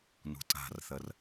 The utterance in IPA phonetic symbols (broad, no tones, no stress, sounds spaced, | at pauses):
n ṳ tʼ a̤ r θ ɐ r